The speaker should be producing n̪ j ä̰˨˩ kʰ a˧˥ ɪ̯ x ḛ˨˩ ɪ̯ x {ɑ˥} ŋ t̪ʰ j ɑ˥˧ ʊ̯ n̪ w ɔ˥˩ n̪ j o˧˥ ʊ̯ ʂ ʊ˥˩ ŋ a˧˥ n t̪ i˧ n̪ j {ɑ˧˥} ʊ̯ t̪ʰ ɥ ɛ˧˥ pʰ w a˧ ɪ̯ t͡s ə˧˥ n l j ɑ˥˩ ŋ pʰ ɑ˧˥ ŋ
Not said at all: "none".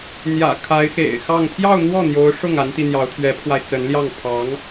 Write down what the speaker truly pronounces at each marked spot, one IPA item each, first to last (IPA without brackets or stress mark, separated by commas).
ɑ˥˧, ɑ˧˥